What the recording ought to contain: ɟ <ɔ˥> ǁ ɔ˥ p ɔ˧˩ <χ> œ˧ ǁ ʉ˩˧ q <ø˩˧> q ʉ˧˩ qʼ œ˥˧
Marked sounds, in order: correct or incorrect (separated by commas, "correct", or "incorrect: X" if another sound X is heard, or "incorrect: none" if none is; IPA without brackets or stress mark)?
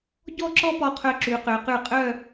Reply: incorrect: ɔ˥˧, incorrect: qʰ, correct